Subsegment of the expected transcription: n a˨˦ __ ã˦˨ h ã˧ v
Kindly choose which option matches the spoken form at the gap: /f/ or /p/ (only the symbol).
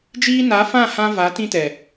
f